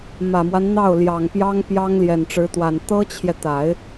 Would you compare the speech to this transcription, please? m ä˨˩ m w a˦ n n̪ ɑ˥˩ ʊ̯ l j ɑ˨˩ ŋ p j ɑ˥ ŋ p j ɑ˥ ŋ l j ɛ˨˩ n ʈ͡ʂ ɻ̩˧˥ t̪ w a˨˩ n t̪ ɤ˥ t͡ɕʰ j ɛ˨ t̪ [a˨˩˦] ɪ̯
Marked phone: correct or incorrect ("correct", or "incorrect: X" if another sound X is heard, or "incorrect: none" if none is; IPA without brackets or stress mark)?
correct